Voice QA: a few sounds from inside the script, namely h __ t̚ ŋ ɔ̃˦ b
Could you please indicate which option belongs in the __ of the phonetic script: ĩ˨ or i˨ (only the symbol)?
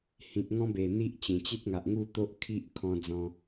ĩ˨